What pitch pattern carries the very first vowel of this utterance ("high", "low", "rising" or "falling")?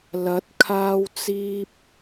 rising